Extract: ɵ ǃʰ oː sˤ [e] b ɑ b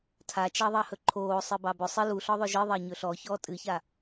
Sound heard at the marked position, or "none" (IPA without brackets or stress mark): ɨ